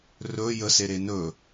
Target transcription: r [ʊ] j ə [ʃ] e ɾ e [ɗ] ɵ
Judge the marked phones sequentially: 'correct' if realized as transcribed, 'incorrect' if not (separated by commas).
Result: incorrect, incorrect, incorrect